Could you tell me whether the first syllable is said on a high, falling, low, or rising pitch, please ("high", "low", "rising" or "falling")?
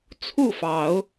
falling